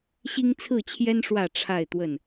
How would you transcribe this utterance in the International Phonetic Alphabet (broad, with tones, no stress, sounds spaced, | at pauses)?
ɕ i˦ ŋ t͡sʰ ɹ̩˥˨ t͡ɕʰ j ɛ˦ n ʂ w ä˥˨ ʈ͡ʂʰ a˥˨ ɪ̯ t̪ w ə˥˨ n